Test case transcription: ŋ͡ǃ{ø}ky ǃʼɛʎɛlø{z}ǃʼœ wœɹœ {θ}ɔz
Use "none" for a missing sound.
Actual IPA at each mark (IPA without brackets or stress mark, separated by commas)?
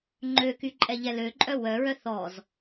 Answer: ø, none, θ